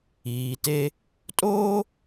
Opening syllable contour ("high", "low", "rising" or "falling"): low